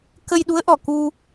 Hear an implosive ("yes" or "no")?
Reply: yes